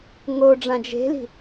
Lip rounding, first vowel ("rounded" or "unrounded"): rounded